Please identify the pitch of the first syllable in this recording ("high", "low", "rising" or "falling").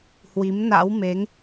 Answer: rising